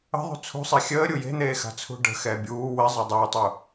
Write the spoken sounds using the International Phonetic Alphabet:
ə̤ðˤṳ t͡sʰṳsˤe xʲəː ɾʲuje̤n̪eː xa̤t͡sʰṳɖə̤xɛː bʲuː wɪzˤɪː dˤuːtˤu

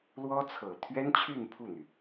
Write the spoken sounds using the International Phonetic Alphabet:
lwɔ˥t͡sʰɤ˨˩ t̪ʰɥɛ˥nt͡ɕʰy˥˧n pʰu˥˩n̪y˩

